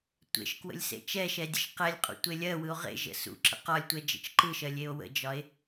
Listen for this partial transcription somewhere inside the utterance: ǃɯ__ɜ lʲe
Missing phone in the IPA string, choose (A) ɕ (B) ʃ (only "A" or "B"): B